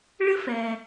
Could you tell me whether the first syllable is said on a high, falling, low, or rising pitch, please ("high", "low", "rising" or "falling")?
high